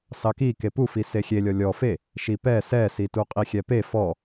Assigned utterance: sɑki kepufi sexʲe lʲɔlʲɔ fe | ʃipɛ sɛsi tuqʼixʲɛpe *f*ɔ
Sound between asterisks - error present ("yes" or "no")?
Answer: no